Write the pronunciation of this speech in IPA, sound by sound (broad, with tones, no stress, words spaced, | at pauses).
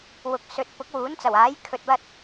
wʊ˨˥k̚sɵ˨˥t̚ pʊ˨˥k̚wuː˨˥nt͡sɐ˨˩waː˨˥j kʰɵ˧t̚wɐ˥t̚